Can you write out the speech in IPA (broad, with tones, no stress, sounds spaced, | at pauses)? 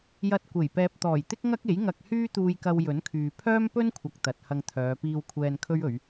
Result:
j ɐ˧ t̚ kʷ e˨˩ j p ɛː˨ p̚ t̪ ɔː˨˩ j t̪ ɪ˥ k̚ ŋ ɐ˥ k̚ e˨˥ j ŋ ɐ˧ k̚ h yː˥ t̪ uː˧ j k ɐ˧ w j ɵ˨˥ n kʰ yː˨ pʰ œː˥ m p ɵ˥ n kʷʰ ɐ˨ k̚ t̪ ɐ˨ t̚ h ɐ˧ ŋ t̪ʰ œː˨˧ p iː˧ w kʷʰ ɛː˧ n kʰ ɵ˥ ɥ ɵ˨˧ ɥ